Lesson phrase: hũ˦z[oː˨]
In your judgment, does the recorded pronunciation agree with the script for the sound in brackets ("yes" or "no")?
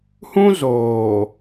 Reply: yes